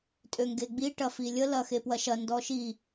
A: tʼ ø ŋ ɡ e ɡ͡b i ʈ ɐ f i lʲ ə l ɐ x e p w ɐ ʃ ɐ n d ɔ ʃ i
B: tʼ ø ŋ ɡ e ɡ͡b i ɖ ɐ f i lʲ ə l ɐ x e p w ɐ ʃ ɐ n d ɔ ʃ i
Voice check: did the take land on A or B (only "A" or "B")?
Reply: A